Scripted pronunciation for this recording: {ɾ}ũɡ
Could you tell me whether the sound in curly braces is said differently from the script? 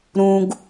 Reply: no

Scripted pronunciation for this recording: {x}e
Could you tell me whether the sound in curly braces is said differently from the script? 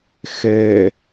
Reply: no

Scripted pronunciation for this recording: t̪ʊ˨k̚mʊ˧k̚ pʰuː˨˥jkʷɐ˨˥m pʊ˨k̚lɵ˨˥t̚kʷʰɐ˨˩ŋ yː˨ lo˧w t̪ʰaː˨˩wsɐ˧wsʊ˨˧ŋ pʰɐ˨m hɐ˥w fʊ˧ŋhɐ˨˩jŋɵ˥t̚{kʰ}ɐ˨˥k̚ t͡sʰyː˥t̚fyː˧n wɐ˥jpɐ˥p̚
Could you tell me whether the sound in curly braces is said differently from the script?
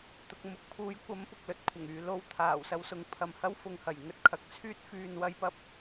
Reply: no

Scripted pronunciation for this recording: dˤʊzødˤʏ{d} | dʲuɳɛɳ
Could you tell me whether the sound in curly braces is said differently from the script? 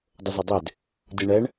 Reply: no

